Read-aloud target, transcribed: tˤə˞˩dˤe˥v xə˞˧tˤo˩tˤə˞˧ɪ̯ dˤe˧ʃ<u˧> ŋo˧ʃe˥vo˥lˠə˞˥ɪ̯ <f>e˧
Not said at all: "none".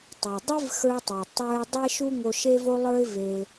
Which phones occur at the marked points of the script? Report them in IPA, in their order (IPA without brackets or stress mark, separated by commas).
u˧, v